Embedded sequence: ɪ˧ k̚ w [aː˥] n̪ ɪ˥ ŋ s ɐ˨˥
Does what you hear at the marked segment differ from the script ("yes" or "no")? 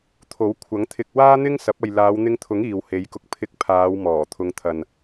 no